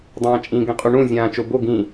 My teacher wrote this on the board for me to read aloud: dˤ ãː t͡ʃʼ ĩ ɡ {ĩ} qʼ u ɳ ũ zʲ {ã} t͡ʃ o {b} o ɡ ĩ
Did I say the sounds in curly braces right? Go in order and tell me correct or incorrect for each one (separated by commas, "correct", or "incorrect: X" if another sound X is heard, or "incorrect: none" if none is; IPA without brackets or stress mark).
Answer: incorrect: ẽ, incorrect: ãː, correct